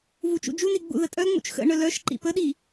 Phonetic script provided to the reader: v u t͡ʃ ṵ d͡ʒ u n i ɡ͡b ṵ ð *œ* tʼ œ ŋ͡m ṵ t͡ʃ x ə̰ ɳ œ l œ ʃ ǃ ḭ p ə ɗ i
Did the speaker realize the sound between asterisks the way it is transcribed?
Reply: no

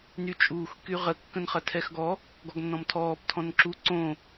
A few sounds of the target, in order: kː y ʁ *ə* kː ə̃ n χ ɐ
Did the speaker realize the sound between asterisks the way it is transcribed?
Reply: yes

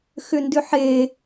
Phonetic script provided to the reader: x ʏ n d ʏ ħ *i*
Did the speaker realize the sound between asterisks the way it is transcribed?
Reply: no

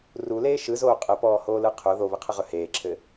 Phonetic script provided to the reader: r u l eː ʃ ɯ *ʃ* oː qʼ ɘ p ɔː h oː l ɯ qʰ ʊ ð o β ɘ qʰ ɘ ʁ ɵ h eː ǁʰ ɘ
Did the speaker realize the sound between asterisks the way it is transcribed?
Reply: no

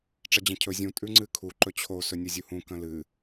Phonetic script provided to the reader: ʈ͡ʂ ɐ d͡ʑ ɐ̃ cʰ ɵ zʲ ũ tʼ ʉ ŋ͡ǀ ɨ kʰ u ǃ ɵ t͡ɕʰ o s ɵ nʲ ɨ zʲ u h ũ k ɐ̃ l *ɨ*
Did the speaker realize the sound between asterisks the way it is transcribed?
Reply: yes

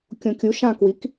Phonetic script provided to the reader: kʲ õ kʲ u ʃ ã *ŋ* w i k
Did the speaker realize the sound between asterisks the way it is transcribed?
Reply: no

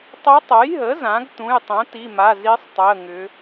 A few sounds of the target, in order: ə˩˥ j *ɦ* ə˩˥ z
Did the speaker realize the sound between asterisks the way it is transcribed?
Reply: yes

